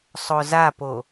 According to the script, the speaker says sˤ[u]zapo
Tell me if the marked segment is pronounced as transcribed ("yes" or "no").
no